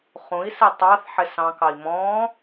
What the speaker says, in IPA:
χ ũ i̯ s ɪ tˤ ɑ θ ħ ɪ s ɑ̃ k ɑ i̯ m ɔ̃

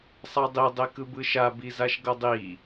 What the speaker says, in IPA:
sˤ a dˤ i dˤ e k ɯ b ɯ ʃ a b i z a ʃ ɡ ʌ dˤ i

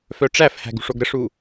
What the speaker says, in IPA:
f œ ʈ͡ʂ æ f h æ̤ ɡ ṳ ʂ o ɡ ɾ ə ʂ u

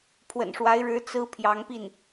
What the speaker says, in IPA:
pʰ w ə̰˨˩ n ʂ w a˧˥ ɪ̯ ɻ ɻ̩˧˥ t͡s ɹ̩˥ pʰ j ɑ˧˥ ŋ p i˥˩ n

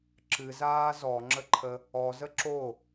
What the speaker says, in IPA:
ǁ ɨ z aː z ɔ ŋ͡ǁ ə ǃʰ ə | ɔ z ə ǁ o

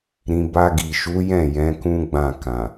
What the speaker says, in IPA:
ɾ ĩ˧ b a˧ ɡ i˨ ʃ u˨˦ j ɛ̃˦˨ j ɛ̃˨˦ k ũ˦ ɡ͡b ã˦˨ k ã˨

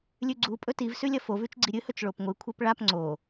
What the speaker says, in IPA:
lʲ ʉ ɡ͡ǀ u pʼ ɵ t i v s ʉ lʲ ɐ f o v ʉ t͡ʃ ɡ͡ǀ i ɾʲ ɨ h ɵ t͡ʃ ɭ o p ŋʷ ɨ kʷʰ e p ɭ a p ŋ͡ǀ o

